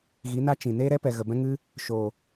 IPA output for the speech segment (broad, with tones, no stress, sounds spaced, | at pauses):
ɣ i˨˦ n a˦ t͡ʃ ĩ˨ n eː˦ ɾ ɛ˦ p ɛ˨ ɣ ə˨ b ɛ̃˦ ŋ ɨ˦ | ʃ oː˨